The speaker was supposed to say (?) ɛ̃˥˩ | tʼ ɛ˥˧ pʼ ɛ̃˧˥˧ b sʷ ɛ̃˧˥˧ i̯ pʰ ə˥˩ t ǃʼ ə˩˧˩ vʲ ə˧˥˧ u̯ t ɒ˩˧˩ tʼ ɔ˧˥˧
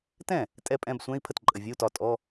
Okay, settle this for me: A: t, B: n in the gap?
A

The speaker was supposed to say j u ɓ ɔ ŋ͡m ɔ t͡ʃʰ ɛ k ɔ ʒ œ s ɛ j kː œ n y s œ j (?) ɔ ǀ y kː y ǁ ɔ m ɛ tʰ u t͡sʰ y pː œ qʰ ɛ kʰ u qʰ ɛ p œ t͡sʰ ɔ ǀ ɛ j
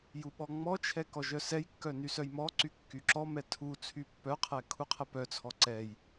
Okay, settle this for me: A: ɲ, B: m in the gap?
B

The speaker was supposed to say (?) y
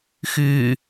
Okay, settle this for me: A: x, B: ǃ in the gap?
A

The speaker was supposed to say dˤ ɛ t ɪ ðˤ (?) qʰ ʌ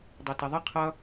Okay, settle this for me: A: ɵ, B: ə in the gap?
B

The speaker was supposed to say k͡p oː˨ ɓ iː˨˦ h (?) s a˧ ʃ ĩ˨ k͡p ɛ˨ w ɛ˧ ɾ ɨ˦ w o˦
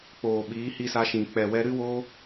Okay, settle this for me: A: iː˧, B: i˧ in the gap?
B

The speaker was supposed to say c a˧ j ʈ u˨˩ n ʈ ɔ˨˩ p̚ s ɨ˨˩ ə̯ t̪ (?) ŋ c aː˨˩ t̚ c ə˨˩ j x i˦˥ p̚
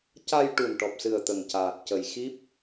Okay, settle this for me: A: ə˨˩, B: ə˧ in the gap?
A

